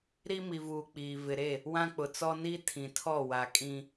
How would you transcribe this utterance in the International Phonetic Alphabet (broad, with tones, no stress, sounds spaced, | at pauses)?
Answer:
ɾ i˦ m i˨ v uː˨ k͡p iː˨ v ɪ˨ ɾ e˦˨ | w ã˦ k͡p ʊ˨ t͡s ɔ˦ n i˦ tʰ ĩ˨ tʰ ɔ˦˨ w a˨ kʼ ĩ˦